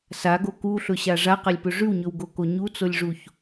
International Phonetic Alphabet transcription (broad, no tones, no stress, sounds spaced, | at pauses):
s a ɡ o k u ɬ ɵ ɕ a ʐ a q a lʲ p ɵ ʐ ʉ w ɲ ɵ w ɡ o k o ɲ u t͡s o lʲ ʐ u ç